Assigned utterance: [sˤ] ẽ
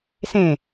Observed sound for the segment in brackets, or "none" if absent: s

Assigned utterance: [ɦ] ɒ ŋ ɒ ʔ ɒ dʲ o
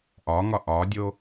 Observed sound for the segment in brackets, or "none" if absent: ʔ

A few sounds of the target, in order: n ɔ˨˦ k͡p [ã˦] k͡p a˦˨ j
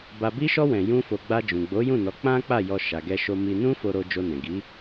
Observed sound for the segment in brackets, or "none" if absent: ã˦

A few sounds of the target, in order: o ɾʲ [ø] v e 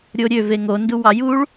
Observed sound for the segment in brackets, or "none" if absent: ø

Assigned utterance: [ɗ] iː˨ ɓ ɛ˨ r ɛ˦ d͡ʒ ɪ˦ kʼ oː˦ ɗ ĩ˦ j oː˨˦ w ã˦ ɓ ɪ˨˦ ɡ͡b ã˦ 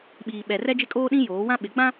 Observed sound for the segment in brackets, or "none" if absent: ɓ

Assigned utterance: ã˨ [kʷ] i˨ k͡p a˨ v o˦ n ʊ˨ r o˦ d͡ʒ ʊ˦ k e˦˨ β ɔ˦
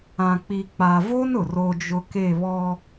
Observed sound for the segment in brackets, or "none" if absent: k͡p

